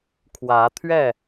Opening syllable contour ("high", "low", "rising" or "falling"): rising